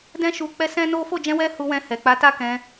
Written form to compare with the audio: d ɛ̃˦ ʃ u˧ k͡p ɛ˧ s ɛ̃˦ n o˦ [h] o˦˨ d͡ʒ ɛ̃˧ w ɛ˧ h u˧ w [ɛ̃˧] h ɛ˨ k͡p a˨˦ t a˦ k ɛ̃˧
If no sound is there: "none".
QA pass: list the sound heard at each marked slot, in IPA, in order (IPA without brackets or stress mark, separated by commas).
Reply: f, ɛ̃˧